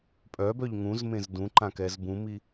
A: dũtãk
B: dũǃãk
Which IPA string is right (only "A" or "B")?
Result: B